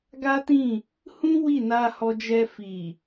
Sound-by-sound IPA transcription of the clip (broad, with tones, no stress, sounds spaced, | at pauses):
ɡ a˦ t ĩ˦˨ | h ũ˦ w i˦˨ n a˧ h ɔ˧ d͡ʒ ɛ˧ f i˨